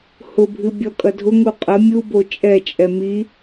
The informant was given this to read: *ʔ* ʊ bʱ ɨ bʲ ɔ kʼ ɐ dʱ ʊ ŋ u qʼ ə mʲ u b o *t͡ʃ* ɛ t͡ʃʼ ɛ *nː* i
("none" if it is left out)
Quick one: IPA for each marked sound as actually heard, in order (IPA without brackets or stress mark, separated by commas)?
h, t͡ʃʼ, m